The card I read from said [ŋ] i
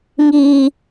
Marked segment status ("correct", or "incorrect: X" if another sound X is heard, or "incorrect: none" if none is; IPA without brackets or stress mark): correct